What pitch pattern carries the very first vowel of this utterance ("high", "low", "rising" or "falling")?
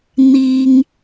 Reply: low